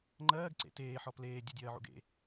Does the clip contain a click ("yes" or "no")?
yes